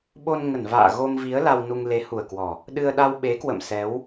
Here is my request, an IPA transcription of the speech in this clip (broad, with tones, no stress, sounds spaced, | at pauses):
ɓ o˧ n ŋ ə˧˩ n v a̰ː˧˨ ɣ o˧ m v i˨˦ ə̯ l a˧ w n u˧ ŋ l e˨˦ h u˨˩ ə̯ k w ɔ˨˩ | ɗ ɨ˧ ə̯ ɗ a˧ w ɓ e˨˦ k w ə̰˧˨ m s ɛ˨˦ w